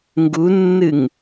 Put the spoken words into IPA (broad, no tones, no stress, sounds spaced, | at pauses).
ŋ ɡ u nː ɨ ŋ